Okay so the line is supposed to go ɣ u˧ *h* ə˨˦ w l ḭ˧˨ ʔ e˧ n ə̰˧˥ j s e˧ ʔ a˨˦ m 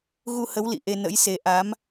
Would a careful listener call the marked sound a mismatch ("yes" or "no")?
no